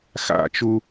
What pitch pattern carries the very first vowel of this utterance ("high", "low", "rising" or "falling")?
falling